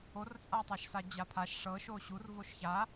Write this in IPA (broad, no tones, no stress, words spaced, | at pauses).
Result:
ort͡sʼatˤaʃsa d͡ʑapʰaʃ ʂɤ ʃoɕur voʃça